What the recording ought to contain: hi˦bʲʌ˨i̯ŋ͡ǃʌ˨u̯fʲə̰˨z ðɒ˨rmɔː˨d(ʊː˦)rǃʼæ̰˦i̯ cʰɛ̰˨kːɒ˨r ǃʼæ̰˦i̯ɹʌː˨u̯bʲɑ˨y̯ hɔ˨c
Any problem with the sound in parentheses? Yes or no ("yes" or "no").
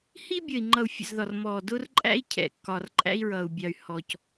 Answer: no